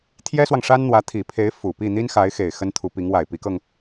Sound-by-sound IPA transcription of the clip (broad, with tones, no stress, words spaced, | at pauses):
t̪ʰjɛ˥swɑ˨ŋʂa˥n n̪wä˧˥ t̪ʰi˨˩pʰe˧˥ɪ̯ fu˨˩ pi˥˩n̪i˥n xa˧˥ɪ̯xe˨˩ɪ̯ xə˥nt̪ʰu˧˥pi˧˥ŋ wa˨˩ɪ̯ pi˧˥kɤ˧ŋ